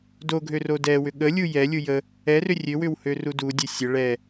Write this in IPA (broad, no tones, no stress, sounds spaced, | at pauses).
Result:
d o ɡʱ ø r o d ɛ w ʏ ɠ ə lʲ u j ɛ lʲ u j ə | ɛ r ʏ rʲ ø w ʏ w h ø r u d u dʲ ə sʲ ə ɭ ɛ